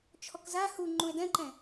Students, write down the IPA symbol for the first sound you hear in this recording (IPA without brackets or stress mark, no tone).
t͡ʃʰ